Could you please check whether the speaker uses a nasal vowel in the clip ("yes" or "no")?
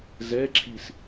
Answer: no